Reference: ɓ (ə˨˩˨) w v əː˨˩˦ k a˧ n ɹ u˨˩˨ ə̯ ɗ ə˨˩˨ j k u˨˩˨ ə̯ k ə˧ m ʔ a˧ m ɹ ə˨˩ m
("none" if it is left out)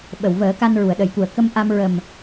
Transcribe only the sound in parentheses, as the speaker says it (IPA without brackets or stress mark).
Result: ə˨˩˨